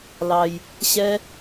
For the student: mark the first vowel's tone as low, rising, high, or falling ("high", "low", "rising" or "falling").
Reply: low